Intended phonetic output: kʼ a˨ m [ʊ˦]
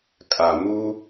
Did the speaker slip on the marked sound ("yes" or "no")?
yes